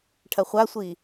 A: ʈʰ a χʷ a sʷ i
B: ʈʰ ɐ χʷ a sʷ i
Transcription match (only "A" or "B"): B